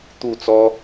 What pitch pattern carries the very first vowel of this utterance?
falling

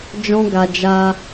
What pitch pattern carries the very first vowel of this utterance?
high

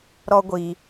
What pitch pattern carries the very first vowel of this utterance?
high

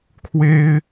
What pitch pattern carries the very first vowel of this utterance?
high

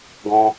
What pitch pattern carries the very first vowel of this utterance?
high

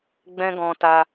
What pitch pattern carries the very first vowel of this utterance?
high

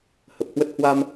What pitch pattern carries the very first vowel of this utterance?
low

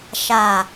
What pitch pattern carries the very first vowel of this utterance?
low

